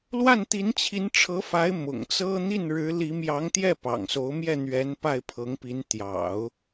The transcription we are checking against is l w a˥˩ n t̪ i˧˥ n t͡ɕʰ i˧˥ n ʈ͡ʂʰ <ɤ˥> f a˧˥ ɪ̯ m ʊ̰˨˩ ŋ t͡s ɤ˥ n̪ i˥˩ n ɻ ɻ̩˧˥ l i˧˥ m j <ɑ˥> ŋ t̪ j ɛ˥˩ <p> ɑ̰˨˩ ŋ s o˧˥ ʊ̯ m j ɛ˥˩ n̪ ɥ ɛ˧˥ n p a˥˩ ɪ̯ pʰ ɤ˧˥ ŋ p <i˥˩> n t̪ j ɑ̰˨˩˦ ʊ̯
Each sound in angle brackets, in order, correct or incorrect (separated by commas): incorrect, incorrect, correct, incorrect